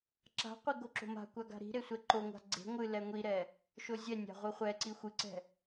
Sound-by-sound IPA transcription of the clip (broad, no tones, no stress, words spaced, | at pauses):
ǁa̤qʷi ɡoǁo̤ma̤kʷa ɡa̤ɾi̤ɾe sʷɛǃoŋʷa̤ ɡ͡ǀe̤ ŋʷɨ lɛŋʷiɾɛ | ʃozʲɛnʲa̤ ʁʷɨχʷɛǀi xʷɨǀɛ̤